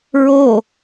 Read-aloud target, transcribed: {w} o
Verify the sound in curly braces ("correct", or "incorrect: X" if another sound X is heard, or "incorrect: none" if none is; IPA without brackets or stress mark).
incorrect: ɹ